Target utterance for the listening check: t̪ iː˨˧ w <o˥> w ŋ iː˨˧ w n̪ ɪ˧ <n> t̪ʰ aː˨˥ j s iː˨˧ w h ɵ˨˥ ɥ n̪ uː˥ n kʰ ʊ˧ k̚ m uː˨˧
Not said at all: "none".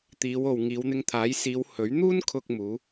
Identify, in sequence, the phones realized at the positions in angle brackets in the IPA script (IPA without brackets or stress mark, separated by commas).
o˨, ŋ